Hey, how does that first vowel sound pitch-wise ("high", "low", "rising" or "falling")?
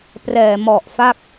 low